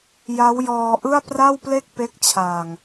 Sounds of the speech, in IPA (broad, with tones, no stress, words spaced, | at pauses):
ja˦˥wjɔː˧ʔɯ˥˩a̯ pra˥˩wple˥˩k̚ pe˦˥k̚t͡ɕʰaː˨˩ŋ